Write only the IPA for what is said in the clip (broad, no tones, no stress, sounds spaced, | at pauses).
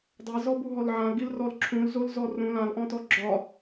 dˤ e z ɔ b u ɦ ɔ l ʕ ã l ɡ i l r ɔ l ǁʰ ũ l z o l z ɔ r ũ l ã l ʔ ɔ̃ t ɔ ɡ͡ǁ ɒ